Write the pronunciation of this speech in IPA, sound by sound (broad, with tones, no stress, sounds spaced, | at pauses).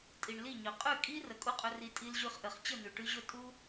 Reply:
tʼ i˨ ɳ l i˦˨ ɲ ɵ˨ qʼ ʉ˦˨ kʼ i˦ r ə˨ kʼ u˦ qʼ ɵ˧ r i˧ tʼ i˧ l ʑ ʉ˧ χ ʔ ɘ˨ χ t͡ɕ ə˦˨ n̪ ʉ˨ ʈ ʉ˧ ʑ ɵ˦˨ tʼ u˦